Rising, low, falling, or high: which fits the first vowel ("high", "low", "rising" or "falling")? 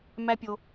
high